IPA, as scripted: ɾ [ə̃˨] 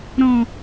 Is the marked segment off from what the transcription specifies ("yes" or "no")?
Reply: yes